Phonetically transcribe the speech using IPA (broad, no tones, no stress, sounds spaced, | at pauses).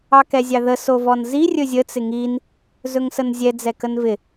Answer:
ɑ k ɛ zʲ ɑ ð ə s o v ɔ n z i rʲ ɵ zʲ ə t͡s ɪ ŋ i n | z ɵ ŋ s ə n zʲ ɛ d͡z ɛ k ə n v ɪ